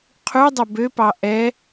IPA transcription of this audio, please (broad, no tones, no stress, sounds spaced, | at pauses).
qʰ ʉ dˤ ɵ b ø p ɑ ʔ ɛ